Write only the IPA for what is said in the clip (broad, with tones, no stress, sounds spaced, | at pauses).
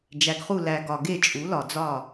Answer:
d͡ʒ æ˩ ɡ χ u˧˩ l æ˩ ɡ ɒ˩ ɡ e˧˩ t͡ʃʼ u˩˧ l ɒ˩ d͡z ɒ˧˩